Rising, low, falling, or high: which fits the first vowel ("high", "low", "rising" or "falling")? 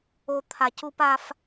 high